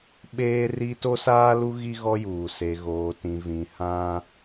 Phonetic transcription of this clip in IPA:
ɓ eː˦ r i˦ t o˦ s aː˦ l u˦ ɣ i˦ ɣ ɔ˦ j uː˨ s e˨ ɣ oː˨ t ĩ˨ v ĩ˨ h ã˦

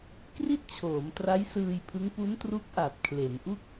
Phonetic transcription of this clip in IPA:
k r i˥˩ t̚ t͡ɕʰ oː˩˦ m t r a˦˥ j s ɯː˧ j pʰ ɯ˦˥ ŋ p u˦˥ n t r u˦˥ k̚ ʔ a˨˩ t̚ kʰ l e˩˦ n ʔ u˥˩ k̚

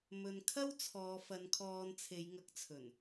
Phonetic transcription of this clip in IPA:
m ɵ˨ n kʰ ɐ˥ w t͡sʰ ɔː˨˧ f ɐ˨˧ n kʰ ɔː˧ n t͡sʰ e˨˧ j ŋ ɐ˨˥ k̚ t͡sʰ ɵ˨˩ n

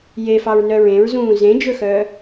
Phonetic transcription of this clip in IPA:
j e f ɑ ɹ n œ ɹ ẽ ɹ z ũː z ẽ d͡ʒ ɵ x œː

